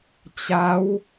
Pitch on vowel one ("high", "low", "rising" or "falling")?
rising